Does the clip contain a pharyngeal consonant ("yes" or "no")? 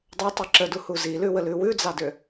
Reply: no